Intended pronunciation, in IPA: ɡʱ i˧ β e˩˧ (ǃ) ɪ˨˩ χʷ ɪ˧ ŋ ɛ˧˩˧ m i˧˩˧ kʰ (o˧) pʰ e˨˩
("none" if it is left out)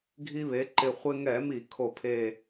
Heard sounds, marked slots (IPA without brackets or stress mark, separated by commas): ǃ, o˨˩